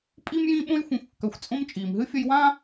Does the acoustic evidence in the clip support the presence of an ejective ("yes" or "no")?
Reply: yes